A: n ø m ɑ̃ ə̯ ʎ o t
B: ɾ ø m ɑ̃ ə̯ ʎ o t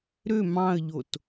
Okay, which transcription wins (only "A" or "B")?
B